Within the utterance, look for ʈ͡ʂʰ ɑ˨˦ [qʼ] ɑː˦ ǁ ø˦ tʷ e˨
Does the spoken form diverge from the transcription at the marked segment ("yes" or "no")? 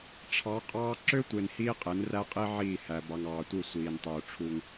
no